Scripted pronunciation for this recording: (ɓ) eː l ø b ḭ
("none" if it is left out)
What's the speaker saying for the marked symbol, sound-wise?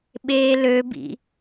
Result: ɓ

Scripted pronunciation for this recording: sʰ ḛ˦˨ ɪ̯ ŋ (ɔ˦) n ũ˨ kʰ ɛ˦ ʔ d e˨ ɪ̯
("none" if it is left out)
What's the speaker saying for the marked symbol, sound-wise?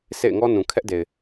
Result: ɔ˦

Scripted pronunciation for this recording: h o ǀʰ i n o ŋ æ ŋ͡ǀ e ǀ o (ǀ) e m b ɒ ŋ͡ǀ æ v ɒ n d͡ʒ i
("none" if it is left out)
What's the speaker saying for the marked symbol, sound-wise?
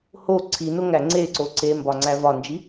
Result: ǀ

